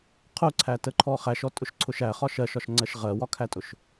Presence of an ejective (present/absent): present